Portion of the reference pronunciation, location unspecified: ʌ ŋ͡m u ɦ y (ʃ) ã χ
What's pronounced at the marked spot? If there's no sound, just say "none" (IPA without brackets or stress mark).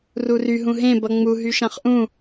ʃ